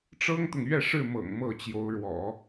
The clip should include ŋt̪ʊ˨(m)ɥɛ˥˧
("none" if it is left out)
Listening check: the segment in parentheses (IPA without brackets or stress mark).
ŋ